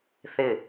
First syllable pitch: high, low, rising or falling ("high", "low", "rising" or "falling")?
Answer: falling